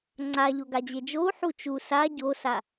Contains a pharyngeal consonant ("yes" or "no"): yes